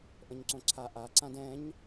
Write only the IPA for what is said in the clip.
ʔ ə̃ ɲ ǀ õ ǀʰ a ʔ a ǀ ã d ɛ̃ ɲ

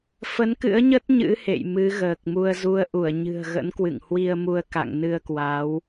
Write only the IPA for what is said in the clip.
f ə˨˦ n k ɨ̰˧˥ ə̯ ɲ ə˦˥ t̚ ɲ ɨ̰˧˥ h ḛ˧˨ j m ɨ˨˦ ɣ əː˨˩ k̚ m u˧ ə̯ z u˨˦ ə̯ ʔ u˧˩ ə̯ ɲ ɨ̤˨˩ ə̯ ɣ ə̰˧˥ n k w ɨ̰˧˨ ŋ h w i˧ ə̯ m u˧ ə̯ k a̰˧˨ ŋ n ɨ˧ ə̯ k w a˨˦ w

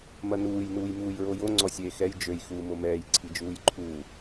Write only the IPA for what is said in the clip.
m ɐ n uː j n uː j m uː j ɹ o j o ŋ͡ǀ ɔ sʲ eː x ɛ j d͡ʒ ø j x uː m o m ɛː j ǀʰ i d͡ʒ uː j ǃʰ uː

